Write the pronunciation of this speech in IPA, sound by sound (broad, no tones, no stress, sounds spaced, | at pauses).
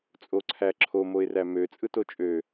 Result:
t͡sʼ o ǀʰ æ ǁʰ o m o ɪ̯ r æ m ø t͡sʼ ɯ t o t͡ʃʼ ø